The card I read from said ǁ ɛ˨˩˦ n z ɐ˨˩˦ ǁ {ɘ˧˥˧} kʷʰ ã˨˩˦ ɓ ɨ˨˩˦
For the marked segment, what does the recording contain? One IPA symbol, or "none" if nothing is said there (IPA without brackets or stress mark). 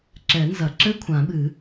ɘ˧˥˧